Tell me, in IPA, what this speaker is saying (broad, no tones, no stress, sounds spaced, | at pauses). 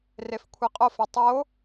r e f kʷʰ i qʼ o f i tˤ o